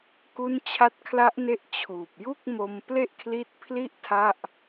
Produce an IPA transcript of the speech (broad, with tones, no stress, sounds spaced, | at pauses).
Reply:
k u˦˥ n t͡ɕʰ a˦˥ t̚ kʰ l a˦˥ ʔ n e˦˥ ʔ t͡ɕʰ uː˨˩ p̚ j u˥˩ k̚ m o˧ m p l e˥˩ ʔ kʰ l i˦˥ t̚ pʰ l i˥˩ ʔ tʰ a˥˩ ʔ